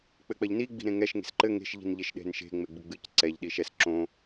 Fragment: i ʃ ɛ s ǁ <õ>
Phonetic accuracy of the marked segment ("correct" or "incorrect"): correct